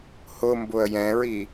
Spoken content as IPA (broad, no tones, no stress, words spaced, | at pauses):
hʊmbʊə̯ jɛ̃ɹi